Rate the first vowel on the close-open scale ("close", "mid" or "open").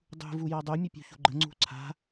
close